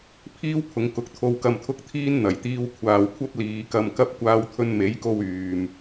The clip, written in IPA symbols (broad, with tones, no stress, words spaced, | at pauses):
pʰiː˥wpʰʊ˨˧ŋ kʊ˨˥k̚t̪ʰo˧w kɐ˧mt̪ʰʊ˥k̚t̪ʰiː˥n n̪ɐ˨˩jt̪iː˧wkʷʰaː˨w kʷʰɐ˥p̚liː˨˧kɐ˧mkɐ˥p̚ kʷaː˧wt̪ʰɵ˧n me˨˥jko˧w yː˨m